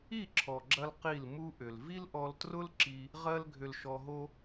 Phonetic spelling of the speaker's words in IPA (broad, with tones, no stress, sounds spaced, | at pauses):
i˦˨ ǁʰ ɔ˨ ɡ͡ǁ ɐ˧ l q i˦˨ l m u˧ ʔ ʏ˨ l v i˦ l ʔ ɔ˧ l t r ʊ˦ l ǁ i˧ | ʁ ɜ˦ l ɡʱ ʏ˧ l ʃ ɔ˧ ɦ o˦